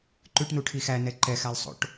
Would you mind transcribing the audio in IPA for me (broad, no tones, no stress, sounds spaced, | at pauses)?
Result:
ǃ ʉ ʈ n u ʈʰ i x æ n ɛ ǃ ɛ x æ lˠ sˤ o̰ ʈ